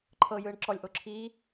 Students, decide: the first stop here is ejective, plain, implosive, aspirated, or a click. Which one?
click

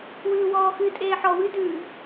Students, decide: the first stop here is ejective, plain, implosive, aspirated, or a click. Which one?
ejective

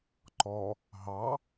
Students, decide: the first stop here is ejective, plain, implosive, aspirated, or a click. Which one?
click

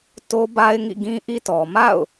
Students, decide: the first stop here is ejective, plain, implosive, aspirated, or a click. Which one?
plain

